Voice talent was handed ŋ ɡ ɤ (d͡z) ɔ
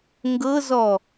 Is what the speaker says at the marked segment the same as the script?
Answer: no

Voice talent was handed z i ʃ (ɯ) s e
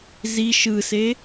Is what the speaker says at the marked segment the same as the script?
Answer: yes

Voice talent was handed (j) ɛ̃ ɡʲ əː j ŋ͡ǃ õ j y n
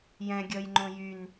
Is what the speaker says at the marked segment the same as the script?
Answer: yes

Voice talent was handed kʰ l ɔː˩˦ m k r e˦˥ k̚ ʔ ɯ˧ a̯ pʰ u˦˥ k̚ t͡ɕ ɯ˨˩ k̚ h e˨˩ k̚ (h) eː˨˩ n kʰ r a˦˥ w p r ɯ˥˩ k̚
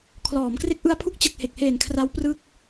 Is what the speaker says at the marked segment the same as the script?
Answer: yes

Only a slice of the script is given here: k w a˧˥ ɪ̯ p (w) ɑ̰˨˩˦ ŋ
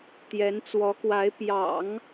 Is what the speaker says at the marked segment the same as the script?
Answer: no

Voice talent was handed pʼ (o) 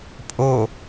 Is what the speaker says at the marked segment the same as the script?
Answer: yes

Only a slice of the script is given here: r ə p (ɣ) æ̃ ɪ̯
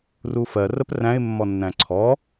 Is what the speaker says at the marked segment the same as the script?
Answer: no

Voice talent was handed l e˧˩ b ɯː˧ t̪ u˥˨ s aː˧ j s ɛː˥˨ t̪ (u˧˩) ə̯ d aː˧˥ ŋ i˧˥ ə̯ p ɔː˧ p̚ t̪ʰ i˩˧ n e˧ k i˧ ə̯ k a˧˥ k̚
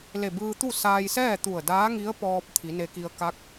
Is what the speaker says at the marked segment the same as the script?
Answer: yes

